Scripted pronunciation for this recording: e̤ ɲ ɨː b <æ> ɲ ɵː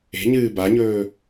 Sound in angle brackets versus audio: incorrect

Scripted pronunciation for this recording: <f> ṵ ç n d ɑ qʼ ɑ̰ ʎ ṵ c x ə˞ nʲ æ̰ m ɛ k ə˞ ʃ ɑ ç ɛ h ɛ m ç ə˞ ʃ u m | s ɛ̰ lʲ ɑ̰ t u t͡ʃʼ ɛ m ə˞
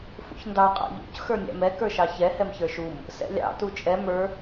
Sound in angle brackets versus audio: correct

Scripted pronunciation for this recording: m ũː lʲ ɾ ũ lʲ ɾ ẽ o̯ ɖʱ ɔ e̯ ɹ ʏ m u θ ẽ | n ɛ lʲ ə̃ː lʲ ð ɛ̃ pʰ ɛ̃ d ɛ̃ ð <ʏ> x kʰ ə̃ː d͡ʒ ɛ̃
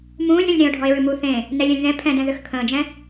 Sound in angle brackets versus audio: correct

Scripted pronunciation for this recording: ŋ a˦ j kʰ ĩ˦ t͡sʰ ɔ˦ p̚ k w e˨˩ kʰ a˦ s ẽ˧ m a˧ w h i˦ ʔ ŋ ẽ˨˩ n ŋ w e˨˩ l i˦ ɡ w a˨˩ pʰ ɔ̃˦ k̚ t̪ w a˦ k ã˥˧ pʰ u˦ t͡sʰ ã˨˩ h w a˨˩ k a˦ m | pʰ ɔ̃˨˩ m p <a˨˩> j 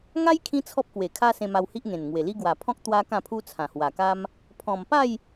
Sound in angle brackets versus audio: incorrect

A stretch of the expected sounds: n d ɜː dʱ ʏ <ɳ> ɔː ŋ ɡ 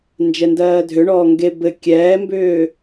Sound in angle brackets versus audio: correct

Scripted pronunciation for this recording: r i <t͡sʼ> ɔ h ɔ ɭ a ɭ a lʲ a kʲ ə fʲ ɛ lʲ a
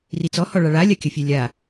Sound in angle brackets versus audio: incorrect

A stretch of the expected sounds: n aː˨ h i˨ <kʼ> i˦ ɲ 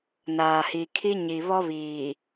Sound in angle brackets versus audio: incorrect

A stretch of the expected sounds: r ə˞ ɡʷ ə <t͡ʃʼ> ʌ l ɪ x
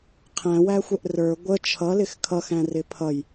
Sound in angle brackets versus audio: incorrect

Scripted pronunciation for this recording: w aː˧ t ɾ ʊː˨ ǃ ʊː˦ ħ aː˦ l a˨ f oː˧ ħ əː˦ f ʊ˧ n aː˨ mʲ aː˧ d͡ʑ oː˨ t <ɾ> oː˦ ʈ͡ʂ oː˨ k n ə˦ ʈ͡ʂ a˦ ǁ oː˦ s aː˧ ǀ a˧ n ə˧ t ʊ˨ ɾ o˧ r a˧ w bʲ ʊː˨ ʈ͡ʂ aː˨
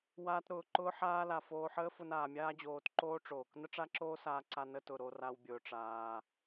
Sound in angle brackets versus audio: incorrect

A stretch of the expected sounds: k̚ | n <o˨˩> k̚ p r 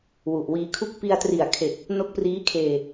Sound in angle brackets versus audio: incorrect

